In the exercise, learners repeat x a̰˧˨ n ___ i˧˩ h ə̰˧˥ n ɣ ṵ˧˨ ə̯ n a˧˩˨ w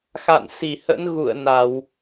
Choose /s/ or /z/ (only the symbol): s